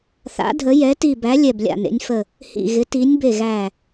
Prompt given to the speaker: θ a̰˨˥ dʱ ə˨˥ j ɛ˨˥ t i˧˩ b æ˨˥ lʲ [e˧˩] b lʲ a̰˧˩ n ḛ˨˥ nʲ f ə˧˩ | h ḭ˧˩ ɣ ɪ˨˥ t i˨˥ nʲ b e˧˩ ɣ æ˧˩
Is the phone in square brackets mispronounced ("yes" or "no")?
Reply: yes